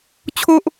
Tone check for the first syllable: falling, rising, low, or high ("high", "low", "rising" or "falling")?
high